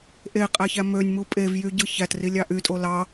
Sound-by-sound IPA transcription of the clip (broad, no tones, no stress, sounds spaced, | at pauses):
ʔ e qʼ æ ç æ m ø nʲ m u pʼ e v j y ɟ ɯ ç æ t r i lʲ ɑ ʔ y tʼ o l ɑ